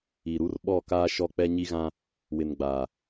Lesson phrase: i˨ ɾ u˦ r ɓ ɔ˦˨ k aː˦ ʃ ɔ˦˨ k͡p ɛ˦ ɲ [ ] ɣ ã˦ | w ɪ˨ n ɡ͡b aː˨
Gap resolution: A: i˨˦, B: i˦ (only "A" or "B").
B